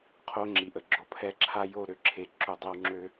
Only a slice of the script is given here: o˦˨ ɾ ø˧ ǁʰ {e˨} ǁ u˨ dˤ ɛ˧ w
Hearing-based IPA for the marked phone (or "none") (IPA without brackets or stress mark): e˨